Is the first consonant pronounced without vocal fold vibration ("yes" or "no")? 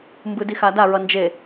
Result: no